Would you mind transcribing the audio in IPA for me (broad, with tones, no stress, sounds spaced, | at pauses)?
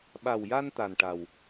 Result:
ɓ a˨˩ w j a˧ n t̪ a˨˩ n ʈ a˨˩ w